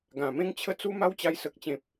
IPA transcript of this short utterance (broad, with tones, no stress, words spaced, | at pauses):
ɡã˨˩mẽ˦ŋt͡ɕʰə˦ t͡su˧ ma˦wt͡ɕa˧j sə˨k̚t͡ɕẽ˨p̚